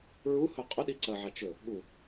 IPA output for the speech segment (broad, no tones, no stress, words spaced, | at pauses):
ɹuhɵ qʼɵɗi ǀɐʕa t͡ʃɵ | ɠu